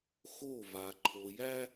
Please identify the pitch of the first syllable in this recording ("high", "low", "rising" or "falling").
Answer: falling